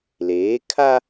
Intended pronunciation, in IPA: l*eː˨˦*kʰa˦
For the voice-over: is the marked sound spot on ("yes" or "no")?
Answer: yes